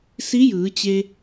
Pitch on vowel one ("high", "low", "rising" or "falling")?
rising